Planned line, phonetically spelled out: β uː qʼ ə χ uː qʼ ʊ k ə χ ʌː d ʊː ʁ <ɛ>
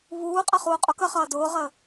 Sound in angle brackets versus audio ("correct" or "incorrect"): incorrect